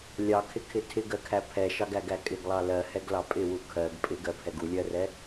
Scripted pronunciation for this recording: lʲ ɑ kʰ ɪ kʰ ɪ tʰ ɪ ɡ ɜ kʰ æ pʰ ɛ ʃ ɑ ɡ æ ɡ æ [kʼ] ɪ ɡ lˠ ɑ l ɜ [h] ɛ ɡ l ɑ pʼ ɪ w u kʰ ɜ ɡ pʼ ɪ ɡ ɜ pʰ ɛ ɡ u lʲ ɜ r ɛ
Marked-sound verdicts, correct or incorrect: correct, correct

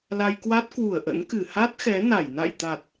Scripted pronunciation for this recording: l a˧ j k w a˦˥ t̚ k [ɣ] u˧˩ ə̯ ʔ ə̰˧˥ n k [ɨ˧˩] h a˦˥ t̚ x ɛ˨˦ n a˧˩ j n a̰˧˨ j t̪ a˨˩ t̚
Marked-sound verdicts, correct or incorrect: incorrect, correct

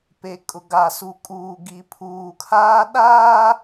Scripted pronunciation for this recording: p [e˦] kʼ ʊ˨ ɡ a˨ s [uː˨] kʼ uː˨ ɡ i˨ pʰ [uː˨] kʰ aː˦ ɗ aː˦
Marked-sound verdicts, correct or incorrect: incorrect, incorrect, correct

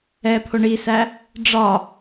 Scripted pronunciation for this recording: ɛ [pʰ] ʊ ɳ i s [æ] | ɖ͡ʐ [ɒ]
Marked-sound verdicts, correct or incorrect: correct, correct, correct

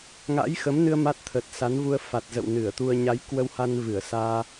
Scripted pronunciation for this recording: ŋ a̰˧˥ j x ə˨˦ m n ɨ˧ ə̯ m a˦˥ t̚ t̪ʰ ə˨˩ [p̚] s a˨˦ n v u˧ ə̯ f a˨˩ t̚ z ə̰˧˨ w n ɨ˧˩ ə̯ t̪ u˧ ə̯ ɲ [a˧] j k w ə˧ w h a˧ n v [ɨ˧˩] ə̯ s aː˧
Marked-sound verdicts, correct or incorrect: incorrect, incorrect, correct

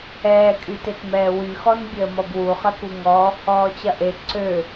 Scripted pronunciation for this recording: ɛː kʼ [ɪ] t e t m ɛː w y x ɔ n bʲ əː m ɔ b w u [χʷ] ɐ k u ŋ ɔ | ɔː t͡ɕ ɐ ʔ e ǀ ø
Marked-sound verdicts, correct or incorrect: incorrect, incorrect

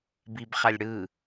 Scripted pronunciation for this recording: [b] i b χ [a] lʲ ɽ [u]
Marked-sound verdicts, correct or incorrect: correct, correct, incorrect

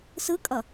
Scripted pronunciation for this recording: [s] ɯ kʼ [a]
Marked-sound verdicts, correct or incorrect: correct, incorrect

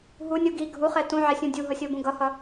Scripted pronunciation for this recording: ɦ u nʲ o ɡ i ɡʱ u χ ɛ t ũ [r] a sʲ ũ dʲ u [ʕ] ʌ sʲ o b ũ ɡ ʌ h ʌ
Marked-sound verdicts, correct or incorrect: incorrect, incorrect

